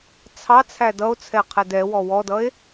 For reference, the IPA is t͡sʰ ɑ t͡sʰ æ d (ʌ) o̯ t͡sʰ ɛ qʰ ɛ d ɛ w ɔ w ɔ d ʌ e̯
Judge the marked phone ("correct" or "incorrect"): correct